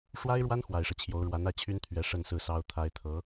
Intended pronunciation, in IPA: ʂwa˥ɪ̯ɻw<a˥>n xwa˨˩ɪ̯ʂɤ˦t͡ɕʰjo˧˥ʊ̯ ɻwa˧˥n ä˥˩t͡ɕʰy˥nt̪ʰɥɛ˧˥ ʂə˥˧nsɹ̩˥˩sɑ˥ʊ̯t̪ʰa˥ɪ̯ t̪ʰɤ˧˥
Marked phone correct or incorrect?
correct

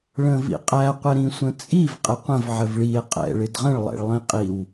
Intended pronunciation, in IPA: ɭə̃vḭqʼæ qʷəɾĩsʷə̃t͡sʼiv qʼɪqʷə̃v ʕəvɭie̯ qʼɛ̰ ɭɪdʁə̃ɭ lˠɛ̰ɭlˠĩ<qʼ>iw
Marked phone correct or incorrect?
correct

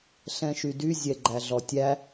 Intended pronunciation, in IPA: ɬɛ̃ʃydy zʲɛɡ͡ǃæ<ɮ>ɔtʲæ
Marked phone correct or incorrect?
correct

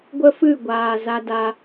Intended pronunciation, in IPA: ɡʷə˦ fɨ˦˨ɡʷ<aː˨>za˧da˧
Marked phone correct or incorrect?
correct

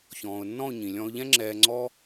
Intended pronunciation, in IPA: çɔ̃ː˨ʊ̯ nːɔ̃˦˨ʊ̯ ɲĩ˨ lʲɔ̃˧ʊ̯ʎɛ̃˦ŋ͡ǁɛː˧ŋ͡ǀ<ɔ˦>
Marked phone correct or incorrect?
correct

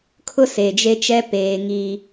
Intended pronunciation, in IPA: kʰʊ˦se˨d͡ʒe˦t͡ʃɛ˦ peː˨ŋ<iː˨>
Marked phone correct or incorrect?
incorrect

